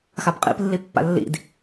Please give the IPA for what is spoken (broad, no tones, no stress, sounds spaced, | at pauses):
x a b qʼ ḭ p lː i pː a̰ lː ḭ d